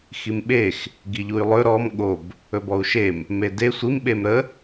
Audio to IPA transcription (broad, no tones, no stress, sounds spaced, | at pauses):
x i m ɓ e x | ɡ i ʎ u y̯ lˠ ɵ ɾ ɔ m ɠ o b | ɵ b ɔ u̯ ʃ e m | m e d e sʷ i m ɓ e m ɾ ə